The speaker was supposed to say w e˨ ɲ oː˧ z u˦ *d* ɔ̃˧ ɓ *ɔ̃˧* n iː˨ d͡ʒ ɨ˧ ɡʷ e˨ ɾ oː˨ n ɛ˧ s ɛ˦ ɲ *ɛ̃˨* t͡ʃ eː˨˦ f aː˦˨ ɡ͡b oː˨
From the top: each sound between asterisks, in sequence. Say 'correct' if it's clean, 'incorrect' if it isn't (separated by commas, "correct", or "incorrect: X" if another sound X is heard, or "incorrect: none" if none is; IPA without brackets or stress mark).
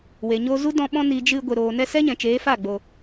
correct, correct, correct